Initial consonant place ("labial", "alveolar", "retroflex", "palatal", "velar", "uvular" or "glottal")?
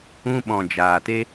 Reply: labial